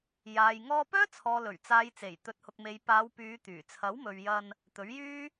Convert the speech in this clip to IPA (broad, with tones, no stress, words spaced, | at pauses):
jaː˨j ŋɔː˧pœː˥ t͡sʰɔː˨lɵ˨˩ɥ t͡saː˨j t͡se˨˩jt̪ɵ˨˥t̚hʊ˨k̚me˨˧j paː˨˧wpyː˨˧ t̪yː˨˩ t͡sʰɐ˨˥wmɵ˨ɥjɐ˧n | t̪ɵ˨˥ɥjyː˥